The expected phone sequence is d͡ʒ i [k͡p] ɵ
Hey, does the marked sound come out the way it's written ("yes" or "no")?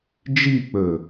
yes